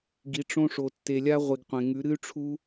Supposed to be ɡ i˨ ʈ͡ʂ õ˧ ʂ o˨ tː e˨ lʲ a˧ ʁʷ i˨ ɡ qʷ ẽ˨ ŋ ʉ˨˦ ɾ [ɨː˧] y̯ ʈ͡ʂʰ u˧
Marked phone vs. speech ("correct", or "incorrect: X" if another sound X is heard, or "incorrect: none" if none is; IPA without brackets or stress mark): incorrect: ɨ˧